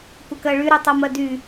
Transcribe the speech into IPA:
kʷəkɜɭyɾy tˤɤmɜdy

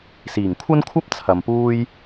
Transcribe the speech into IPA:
siː˨˩ŋkʷʰɐ˥nkʷʰɐ˥p̚ t͡sʰɐ˨mpuː˥j

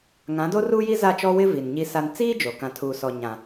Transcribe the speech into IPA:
ŋã˨˦do˦ruː˦ji˦ za˦˨t͡ʃɔ˦ wɪ˦ vi˨nɲi˦sa˦n t͡siː˦ d͡ʒo˨ kã˨tʰuː˨sɔ˨ ɲã˨

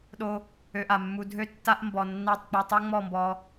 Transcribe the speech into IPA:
ɗo˦ | ø˧ʔa˨mːu˧ dʱø˦ tːa˦ʔ mbɔ˨nːa˦˨tˤk͡po˧ tˤo˦ŋ͡mɔ˦˨mbɔ˧

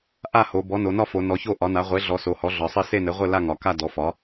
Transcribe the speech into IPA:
ʔa˥˨ho˩˧bɔ˩˥no˩˧ nɒ˥˨fo˩˧ nɔ˩˧ço˥˨ ʔɒ˩˥na˩˥ ʁʷe˩˥ɮɔ˩˧ so˩˧hɔ˩˥ɮɒ˩˧sˤɘ˥˨ se˥˨nɘ˩˥ʁʷɘ˥˨ la˥˨ŋɒ˩˧ka˥˨ dɔ˩˥fɒ˩˥

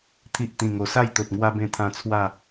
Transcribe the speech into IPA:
t̪ʰi˨ʔ t̪ĩ˨˩ŋo˨˩sa˥˧jt̪o˨t̚ ŋwa˧bẽ˧t̪ʰã˧ t͡sʰwa˥˧

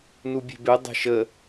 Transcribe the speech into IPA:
nubʲe̤be dˤe̤ʃə

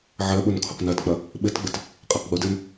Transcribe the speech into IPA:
ʕɜɓʊn kʰʊqnɜtk͡pɐ | ɓɘtɡ͡bɘt | qʼɛqɡ͡bʊdɘn

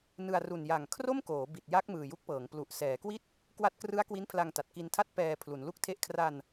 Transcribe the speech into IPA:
nɯ˧a̯ru˨˩n ja˨˩ŋ kʰro˥˩mkoː˩˦ bi˨˩t̚ ja˦˥k̚ mɯː˨˩ju˦˥k̚pɤː˩˦ŋ plu˨˩ʔ sɛː˩˦kwi˥˩t̚ | kwa˦˥t̚krɯ˦˥a̯ kwi˦˥npʰla˧ŋta˨˩t̚ ki˧ntʰa˥˩t̚ pɛː˧ pʰlu˩˦nlu˥˩k̚tʰe˥˩ʔ kʰra˧n

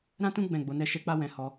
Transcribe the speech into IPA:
ɾã˦tũ˦ ɡ͡bɛ̃˦˨ɡ͡bo˨˦nɛ˦ʃɛ˦ k͡pa˦wɛ̃˧hɔ˧

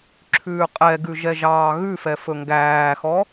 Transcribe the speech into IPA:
ǁʰʉːqʼɛɡʉ ʒɛʒɑːɣʉfɛ fɵŋɡæːxɔ

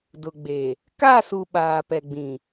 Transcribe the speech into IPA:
dʊ˨ɡ͡be˨ | ka˦˨su˨ ɓaː˨pɛ˨ɡ͡bĩ˨

